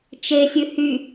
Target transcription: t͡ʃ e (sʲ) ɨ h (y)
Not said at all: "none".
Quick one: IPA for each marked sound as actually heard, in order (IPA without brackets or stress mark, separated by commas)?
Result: sʲ, y